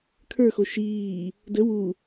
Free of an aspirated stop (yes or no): no